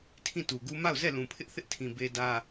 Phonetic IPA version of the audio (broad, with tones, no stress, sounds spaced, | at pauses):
tʰ ĩ˦˨ t u˨ ɡ u˦ m a˦˨ ʊ̯ z ɛ˦˨ l ũ˨ pʰ ɪ˦ ʔ θ ɪ˦ ʔ tʰ ĩ˨ b e˦ d ä˦